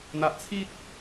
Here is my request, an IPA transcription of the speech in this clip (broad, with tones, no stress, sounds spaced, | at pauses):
n̪ a˨ ʔ t͡sʰ i˦ t̚